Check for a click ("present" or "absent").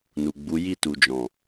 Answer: absent